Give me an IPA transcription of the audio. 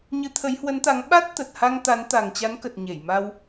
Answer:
ɲ ɨ˨˦ t̪ʰ ə˨˦ j h w ə˨˦ n t̪ a˨˦ ŋ ɓ a˦˥ t̚ t̪ ə˨˩ t̚ h a˧ ŋ t̪ a˨˦ n t̪ a˨˩ ŋ t͡ɕ a˨˦ n k ə˨˩ t̚ ɲ e˧˩ j m a˧ w

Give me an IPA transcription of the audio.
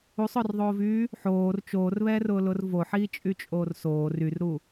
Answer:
u sˤ ʊː r ðˤ oː v yː | ħ oː r t͡ʃ oː r β ɛː r ʊː l ʊ r v o ħ iː t͡ʃʼ y t͡ʃʼ oː r s oː r y r ɾ u

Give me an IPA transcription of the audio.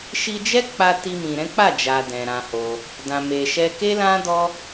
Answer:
ʃ i˧ d͡ʒ ɛ˦ k͡p a˧ t i˧ m ĩ˨ ɾ ɛ̃˨˦ k͡p a˦˨ d͡ʒ a˨ d ɛ̃˨ ɾ ã˧ h o˧ | d ã˨ m e˨ ʃ ɛ˧ k e˦ l ã˦ d ɔ˦

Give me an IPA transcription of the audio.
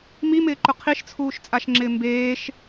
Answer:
m i m ɪː ǃ ʊ qʰ i ʃ t͡sʰ uː ʃ t͡sʼ a ʃ ŋ͡ǁ ɪː m b eː ʃ

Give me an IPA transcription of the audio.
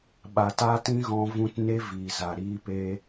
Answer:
ɓ a˨ t a˦ t ĩ˦ ɣ ɔ̃˧ v ũ˦ t n e˦ v iː˨ z a˨ ɾ iː˧ p e˧

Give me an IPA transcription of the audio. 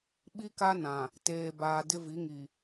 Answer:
ɓ i˦ k a˦ n ã˨ | t eː˨ b aː˨ d ɪ˦ v i˨˦ ŋ i˨

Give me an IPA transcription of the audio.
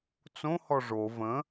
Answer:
t͡s õ h ɔ ʐ o v ə̃

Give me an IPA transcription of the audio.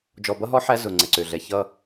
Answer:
d͡ʒ ɔ˨ b ʌ˦ ɦ ɔ˦ ħ æ˦ z ʊ˨ ŋ͡ǀ ɛ˨ ǀ ø˨ ɮ ɛ˨ ç ʌ˦

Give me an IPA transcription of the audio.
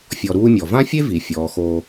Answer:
fʲ ɔ˨ ɾ uː˦ mʲ ɔ˩ v ã˥ fʲ e˥ v i˩ fʲ ɔː˩ x oː˨

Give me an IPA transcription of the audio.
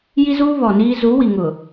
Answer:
j i˦ z uː˦ β ɔ˨ n iː˦ z u˨˦ w i˨ ŋ ʊ˨

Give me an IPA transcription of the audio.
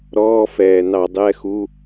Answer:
ɾ ɔː˧˥˧ f ɛː˨˩ n ɑ˧˩˧ dˤ ɛ˧˥˧ x u˧˥˧

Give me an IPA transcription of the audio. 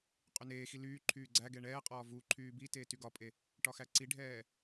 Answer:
qʼ y n eː x i l yː ǃʰ yː ɡ͡ǀ æ ɡ ɛ ɳ ɛː qʼ ɒː v u ǃʰ yː b i t eː t y ɡ ɒ pʼ e | ʈ ɒ x æ ǀ i ɖʱ ɛː

